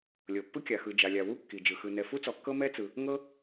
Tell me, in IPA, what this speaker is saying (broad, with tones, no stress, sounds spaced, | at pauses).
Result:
lʲ ɤ˩ pː ɯ˥ kʲ a˩ x ɯ˩ d͡ʒ a˩ lʲ a˩ w u˥ kː i˩ d͡ʒ ɯ˩ x ɯ˩ n ɛ˩ f u˥ t͡s ɔ˩ kː ɤ˥ m ɛ˥ t͡s ɯ˩ | ŋ ɤ˥